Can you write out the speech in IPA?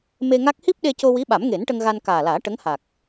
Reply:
me˧ŋa˦˥k̚ hi˦˥p̚ɗe˧co˧ wi˧˥ɓa˨˩˦mŋe˨˩˦n ʈə˧ŋɣa˧n kaː˨˩laː˨˩˦ ʈə˧˥ŋha˨˩k̚

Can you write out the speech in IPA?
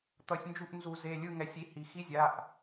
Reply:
t̪ʌ˧˩˧sʲnd͡ʒu˦˨ʔ nzu˧˩˧ze˩˧˩ lʲɯ˦˨ŋɛ˩˧sʲi˩˧˩ hi˩xi˧˥˧zʲa˩˧˩ʔ

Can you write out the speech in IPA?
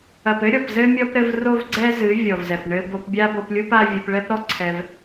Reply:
ɐ˨pɘ˦ ɾʲɔ˨pzɘ˦mʲɔ˦p ɾɘ˧vro˦vɡ͡ǀɛ˦zɨ˨˦ vʲɔ˨vzɛ˨pɳɘ˧ bo˧pbʲa˦bo˧plʲu˦p a˦vʲɨ˧p ɭɛ˦pɾɔ˦ǀʰɛ˧v

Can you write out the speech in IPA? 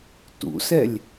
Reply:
tṵsɛlʲ

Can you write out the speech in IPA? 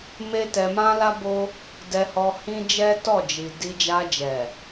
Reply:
me˦tɛ˧ mã˦la˦ bo˦ | dɛ˧hɔ˧ hĩ˦ d͡ʒɛ˦tɔ˦˨d͡ʒi˨ di˧d͡ʒa˧d͡ʒɛ˨

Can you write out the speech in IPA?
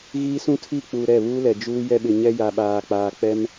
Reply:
ɣiː˦sũ˦tʰiː˦˨k͡puː˨ ɾɛ˦˨βuː˦ lɛ˨d͡ʒuː˦ jɛ˦ɓɪ˨ɲɛ˦ ja˨ɓaː˨k͡paː˨ k͡pɛ˦m

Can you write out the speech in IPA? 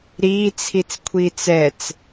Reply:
ɾiːt͡sʰit͡skʷʰiːt͡s ɛt͡s

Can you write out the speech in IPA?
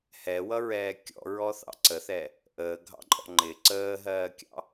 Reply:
hɛwʌɹɛː kʲɔ̰ɹɔθɑ̰ ǀəθɛ | ʔəːɡʱɑ̰ǃʼɔ̰ ŋ͡ǃɪ ǀəːɦɜːkʲɑ̰

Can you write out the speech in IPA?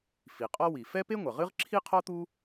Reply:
fi˩qʼɔ˥wi˩ fɛ˥pe˥ŋʷɐ˩ʁɨ˥ʁ ǁʰi˥qʰɔ˥t̪u˥

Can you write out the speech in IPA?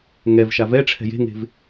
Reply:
ŋɛv ʃavɛʈ͡ʂʰɛ̤ je̤ŋe̤v

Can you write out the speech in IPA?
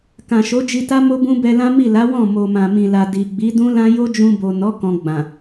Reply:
kã˨ʃo˨˦d͡ʒi˧ta˦ mo˦bũ˦bɛ˧ lã˦mi˦˨ la˨˦ wɔ̃˦˨ mo˨mã˨mĩ˨la˨ di˨ɡ͡bi˨˦ dũ˦lã˦ jo˦d͡ʒũ˧bo˨nɔ˨˦ kɔ̃˧ɡ͡bã˨

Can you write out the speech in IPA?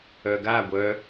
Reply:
œɡa ɡʷœ

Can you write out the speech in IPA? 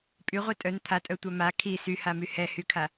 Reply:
pʼyʁʷi tʼœn t̪ʰatʼœtʷœ ma kʰi syhamy hɛhykʰa

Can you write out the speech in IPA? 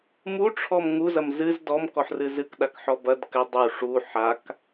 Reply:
muʈ͡ʂʰɔm ŋuzɐm zɨz dɔmkɔħrɨ zɨkɗakħɔ bɐd kɘ dˤu ʂu ħak

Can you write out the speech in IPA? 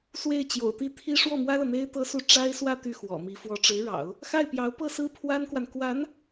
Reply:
swe˥˩ɪ̯t͡ɕjo̰˨˩ʊ̯t̪i˥˩ t̪ʰi˥ ʂwɔ˥˩mwä˥lɤ˨n̪e˥ɪ̯ t̪ɤ˥su˥˩ ʈ͡ʂa˥ɪ̯swä˥˧ t̪y˥˩xwɔ̰˨˩mi˧˥ fwɔ˧˥ʈ͡ʂɻ̩˧˥ɻɑ̰˨˩˦ʊ̯ | xa˥˩ɪ̯pjɑ˧˥ʊ̯ pɤ˥˩sɹ̩˥ pʰwa˥nkwa˨n kwa˧˥n

